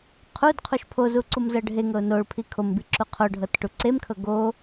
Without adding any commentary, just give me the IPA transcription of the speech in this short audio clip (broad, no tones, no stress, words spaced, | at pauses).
qʰud qʰuʃpʰozu ǀumzɤɖʱeŋɤʊ̯ noɭpʰi kʰombi ǁuqʰoɖʱɤt ʈuǀemkʰɤ ɡo